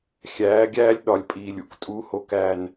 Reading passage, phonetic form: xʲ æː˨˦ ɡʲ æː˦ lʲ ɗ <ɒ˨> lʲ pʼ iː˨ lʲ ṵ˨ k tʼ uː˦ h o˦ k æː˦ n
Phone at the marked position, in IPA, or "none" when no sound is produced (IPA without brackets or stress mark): ɒ˨